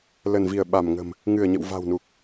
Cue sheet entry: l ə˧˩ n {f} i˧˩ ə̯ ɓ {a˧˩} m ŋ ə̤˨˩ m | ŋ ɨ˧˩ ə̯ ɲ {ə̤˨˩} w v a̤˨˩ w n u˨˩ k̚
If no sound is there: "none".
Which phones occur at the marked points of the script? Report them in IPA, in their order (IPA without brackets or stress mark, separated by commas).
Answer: v, a˧˩, ə̰˧˨